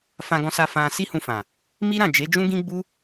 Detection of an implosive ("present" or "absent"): absent